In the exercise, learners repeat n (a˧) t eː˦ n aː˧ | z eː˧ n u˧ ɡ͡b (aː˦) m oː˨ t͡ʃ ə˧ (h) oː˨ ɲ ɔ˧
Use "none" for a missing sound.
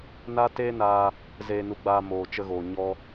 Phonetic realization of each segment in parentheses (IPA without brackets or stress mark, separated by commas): a˦, aː˧, ɣ